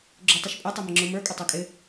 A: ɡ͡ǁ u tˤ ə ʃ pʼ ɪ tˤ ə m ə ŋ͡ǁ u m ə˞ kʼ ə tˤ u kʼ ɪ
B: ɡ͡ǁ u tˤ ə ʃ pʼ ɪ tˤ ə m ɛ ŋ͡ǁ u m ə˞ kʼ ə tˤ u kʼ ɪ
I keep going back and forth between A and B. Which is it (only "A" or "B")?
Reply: A